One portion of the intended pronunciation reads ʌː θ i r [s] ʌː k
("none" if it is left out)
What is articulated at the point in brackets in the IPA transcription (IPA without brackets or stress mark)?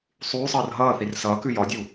s